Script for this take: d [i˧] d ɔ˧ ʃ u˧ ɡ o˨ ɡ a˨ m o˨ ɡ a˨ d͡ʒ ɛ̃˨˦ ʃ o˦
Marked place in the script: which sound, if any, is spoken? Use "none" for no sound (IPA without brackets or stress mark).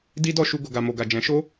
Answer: i˦